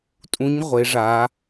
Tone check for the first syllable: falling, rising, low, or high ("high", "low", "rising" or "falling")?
rising